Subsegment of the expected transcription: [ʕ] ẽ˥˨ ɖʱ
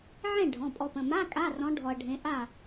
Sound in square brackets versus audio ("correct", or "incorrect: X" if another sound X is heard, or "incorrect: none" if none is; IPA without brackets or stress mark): correct